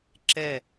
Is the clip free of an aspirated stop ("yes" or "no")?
yes